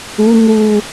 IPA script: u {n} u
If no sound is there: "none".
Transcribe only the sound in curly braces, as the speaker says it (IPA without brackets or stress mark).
n